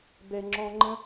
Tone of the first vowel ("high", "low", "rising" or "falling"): low